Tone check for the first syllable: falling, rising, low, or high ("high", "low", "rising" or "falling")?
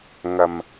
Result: low